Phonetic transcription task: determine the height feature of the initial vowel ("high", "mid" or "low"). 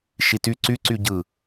high